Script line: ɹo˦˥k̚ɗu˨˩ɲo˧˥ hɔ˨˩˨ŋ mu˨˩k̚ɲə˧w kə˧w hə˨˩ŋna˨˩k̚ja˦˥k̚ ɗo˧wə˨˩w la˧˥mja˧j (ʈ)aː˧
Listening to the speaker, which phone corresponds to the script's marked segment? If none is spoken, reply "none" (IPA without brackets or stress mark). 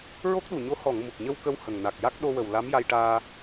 ʈ